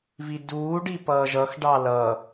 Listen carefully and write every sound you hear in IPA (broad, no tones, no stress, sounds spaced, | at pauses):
v i d uː ɖ i p ʌː ʒ ʌ x ɖ ɑ l ʌ